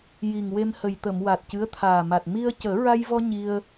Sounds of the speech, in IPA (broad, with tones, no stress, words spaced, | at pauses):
ji˨˩ŋwe˧mhə˨˩jt̪ə˨˩˨m wa˨˩t̚cɨ˧˥ə̯t̪ʰaː˨˩ma˨˩t̚ mi˧ə̯cəː˨˩˦ ɹa˧jvɔ˧ ɲi˧ə̯